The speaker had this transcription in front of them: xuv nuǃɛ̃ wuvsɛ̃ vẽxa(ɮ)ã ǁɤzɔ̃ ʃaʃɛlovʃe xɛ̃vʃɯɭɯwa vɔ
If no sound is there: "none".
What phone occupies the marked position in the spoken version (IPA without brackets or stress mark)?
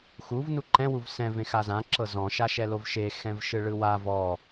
z